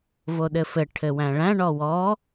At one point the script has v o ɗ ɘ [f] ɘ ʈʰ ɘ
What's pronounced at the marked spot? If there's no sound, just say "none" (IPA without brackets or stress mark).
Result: f